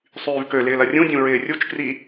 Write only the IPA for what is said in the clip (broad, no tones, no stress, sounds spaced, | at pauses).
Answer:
sˤ yː v k ø l ɪː l ɐ rʲ ũ dʲ ũ ɹ ɪː rʲ u t͡ʃ k r i